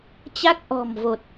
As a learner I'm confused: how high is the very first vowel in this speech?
low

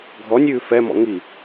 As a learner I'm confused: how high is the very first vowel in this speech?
mid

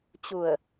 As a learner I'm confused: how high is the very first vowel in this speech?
high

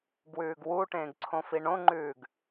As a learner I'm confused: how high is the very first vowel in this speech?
high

